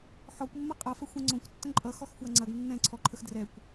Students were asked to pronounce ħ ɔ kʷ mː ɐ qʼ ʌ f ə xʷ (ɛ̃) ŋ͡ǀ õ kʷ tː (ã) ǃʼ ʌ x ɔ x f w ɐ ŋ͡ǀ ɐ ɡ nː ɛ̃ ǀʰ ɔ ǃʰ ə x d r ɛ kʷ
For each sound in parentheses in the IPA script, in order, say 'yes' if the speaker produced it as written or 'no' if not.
yes, no

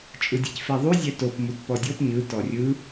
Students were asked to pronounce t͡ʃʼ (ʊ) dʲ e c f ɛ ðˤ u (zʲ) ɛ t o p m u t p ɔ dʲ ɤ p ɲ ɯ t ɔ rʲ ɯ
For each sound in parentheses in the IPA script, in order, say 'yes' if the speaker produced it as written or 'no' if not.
no, yes

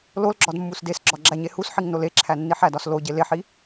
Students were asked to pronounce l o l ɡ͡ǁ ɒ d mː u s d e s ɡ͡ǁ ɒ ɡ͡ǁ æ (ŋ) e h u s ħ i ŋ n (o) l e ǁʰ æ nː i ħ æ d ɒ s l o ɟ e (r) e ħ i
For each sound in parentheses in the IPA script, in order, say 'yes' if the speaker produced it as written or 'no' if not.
no, yes, no

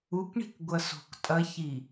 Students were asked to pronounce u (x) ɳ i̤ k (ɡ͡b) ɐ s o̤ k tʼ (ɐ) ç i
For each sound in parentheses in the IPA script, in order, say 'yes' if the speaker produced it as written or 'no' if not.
no, no, yes

